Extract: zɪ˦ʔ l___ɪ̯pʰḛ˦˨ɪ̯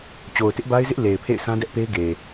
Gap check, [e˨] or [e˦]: e˨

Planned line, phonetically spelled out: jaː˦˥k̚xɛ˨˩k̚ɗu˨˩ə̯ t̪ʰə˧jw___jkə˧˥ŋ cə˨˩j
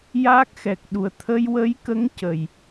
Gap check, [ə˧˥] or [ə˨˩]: ə˧˥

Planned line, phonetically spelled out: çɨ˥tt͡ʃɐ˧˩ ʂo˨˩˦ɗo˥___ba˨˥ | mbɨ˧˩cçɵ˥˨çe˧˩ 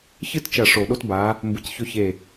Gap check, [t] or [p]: t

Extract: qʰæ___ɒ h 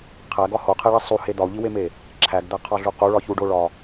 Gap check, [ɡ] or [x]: ɡ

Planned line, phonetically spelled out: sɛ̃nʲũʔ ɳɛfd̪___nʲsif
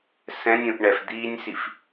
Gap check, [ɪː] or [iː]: iː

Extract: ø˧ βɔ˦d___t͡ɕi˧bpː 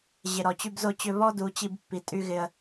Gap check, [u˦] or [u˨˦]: u˨˦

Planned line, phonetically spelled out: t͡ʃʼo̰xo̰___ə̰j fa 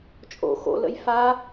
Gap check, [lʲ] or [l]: l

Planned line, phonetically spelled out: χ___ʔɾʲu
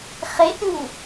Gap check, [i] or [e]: e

